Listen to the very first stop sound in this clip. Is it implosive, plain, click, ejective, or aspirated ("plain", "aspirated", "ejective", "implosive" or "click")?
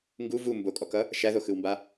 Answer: plain